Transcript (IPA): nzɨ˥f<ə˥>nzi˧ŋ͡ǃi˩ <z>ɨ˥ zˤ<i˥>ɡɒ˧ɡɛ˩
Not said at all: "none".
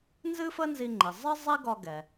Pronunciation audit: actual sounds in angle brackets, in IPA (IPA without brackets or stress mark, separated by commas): ə˥, zˤ, i˥